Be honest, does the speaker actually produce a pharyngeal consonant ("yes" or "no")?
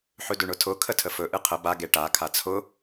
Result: yes